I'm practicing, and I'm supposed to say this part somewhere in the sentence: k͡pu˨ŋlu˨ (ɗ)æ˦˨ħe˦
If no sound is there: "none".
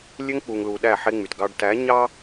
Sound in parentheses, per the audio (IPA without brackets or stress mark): ɗ